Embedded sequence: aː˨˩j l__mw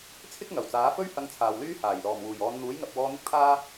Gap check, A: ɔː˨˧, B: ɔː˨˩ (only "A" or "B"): B